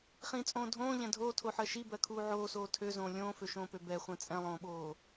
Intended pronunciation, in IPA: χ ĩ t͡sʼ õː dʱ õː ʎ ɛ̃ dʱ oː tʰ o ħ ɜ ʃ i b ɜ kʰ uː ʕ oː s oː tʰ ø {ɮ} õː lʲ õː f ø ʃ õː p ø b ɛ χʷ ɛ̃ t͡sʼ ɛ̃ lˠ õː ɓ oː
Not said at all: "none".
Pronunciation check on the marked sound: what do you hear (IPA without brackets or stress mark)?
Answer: z